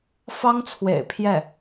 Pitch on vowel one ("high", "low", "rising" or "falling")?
high